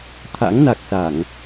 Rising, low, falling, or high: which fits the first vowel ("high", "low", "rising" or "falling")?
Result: rising